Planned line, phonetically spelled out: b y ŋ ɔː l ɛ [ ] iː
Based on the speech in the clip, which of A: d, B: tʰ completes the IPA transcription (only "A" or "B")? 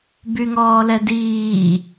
A